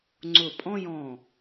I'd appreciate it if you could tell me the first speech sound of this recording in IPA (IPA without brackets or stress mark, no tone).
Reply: ŋ͡ǀ